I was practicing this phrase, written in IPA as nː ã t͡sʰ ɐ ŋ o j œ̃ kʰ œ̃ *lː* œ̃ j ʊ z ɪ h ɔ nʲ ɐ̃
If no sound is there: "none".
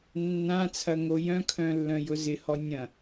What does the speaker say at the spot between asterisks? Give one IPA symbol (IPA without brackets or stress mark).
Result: lː